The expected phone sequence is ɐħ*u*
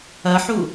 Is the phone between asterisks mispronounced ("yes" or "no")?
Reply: no